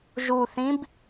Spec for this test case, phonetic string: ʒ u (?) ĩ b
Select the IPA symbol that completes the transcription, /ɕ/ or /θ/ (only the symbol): θ